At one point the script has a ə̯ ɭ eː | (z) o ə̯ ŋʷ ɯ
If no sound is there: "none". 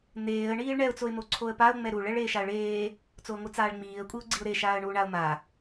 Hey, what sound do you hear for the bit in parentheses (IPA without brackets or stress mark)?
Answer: t͡s